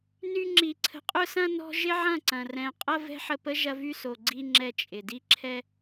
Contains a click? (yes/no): yes